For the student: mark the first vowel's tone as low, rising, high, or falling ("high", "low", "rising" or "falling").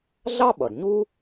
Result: high